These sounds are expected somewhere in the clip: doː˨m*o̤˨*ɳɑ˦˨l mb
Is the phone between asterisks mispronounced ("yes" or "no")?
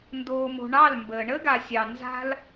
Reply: no